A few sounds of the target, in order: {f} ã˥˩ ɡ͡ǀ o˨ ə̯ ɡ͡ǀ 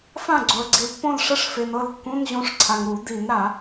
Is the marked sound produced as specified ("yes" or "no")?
yes